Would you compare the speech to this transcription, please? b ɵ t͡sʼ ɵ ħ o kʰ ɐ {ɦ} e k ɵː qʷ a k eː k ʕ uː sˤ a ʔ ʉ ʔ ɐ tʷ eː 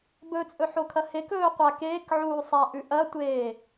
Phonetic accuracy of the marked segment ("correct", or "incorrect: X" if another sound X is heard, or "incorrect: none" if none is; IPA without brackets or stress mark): incorrect: h